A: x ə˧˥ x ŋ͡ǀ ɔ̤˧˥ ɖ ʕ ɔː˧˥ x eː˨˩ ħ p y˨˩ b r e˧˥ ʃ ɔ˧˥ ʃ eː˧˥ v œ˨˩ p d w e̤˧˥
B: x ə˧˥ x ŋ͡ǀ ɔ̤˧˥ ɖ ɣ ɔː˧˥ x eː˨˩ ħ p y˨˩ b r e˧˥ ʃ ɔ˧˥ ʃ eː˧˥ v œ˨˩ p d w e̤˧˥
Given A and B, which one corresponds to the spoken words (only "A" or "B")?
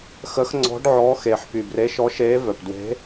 A